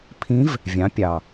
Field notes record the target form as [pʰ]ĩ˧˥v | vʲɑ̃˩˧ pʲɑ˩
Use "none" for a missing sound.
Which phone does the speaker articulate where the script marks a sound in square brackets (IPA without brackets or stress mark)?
pʰ